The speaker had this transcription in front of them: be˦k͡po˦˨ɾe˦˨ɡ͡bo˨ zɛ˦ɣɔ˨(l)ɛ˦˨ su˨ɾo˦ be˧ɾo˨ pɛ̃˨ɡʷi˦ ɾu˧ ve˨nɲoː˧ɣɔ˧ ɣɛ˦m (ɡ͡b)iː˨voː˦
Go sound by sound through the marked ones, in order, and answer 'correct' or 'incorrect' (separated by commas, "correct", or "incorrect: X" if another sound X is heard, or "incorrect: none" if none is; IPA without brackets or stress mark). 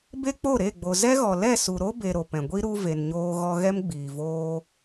correct, correct